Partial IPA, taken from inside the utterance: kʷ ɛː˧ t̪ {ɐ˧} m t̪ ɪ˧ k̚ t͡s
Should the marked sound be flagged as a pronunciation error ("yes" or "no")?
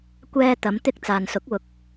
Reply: yes